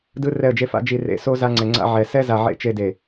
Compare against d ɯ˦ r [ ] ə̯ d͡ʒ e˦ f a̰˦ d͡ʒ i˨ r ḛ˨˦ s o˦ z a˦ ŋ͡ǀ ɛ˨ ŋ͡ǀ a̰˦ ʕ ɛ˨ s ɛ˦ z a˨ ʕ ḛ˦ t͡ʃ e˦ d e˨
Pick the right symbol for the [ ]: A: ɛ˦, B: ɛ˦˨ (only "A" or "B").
B